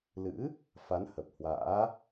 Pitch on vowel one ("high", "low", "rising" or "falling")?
rising